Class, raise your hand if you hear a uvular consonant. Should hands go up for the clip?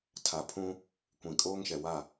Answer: no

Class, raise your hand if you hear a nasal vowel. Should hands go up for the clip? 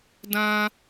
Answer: yes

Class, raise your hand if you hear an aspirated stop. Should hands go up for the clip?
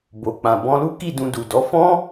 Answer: no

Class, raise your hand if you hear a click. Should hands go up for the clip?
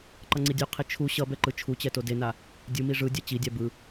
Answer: yes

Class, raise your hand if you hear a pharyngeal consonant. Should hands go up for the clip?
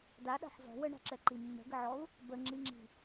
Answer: yes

